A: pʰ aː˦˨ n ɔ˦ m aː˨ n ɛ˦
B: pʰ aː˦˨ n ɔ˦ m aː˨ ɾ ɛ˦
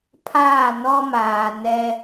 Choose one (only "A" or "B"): A